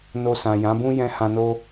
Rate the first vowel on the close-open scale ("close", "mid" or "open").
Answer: mid